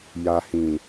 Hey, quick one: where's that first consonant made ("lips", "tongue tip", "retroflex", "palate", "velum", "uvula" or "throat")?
palate